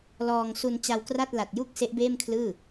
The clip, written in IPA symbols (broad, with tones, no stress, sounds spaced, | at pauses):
l ɔː˧ ŋ s u˧ n t͡ɕ a˧ w k r a˥˩ t̚ l a˨˩ t̚ j u˥˩ k̚ s e˦˥ ʔ b eː˥˩ m kʰ l ɯː˥˩